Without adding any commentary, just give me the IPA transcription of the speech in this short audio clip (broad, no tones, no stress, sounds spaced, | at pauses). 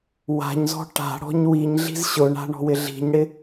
w a̤ ɲ z ɔ̤ ʈ a̤ ɽ ɔ̤ ɲ w i ɲ ɮ i̤ z ɕ ʊ ɳ a̤ ɳ ɔ̤ w ɪ ɮ i̤ ɲ ɽ ɪ